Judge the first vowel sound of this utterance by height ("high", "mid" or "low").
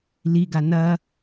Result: high